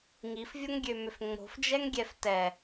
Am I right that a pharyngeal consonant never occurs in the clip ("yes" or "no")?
yes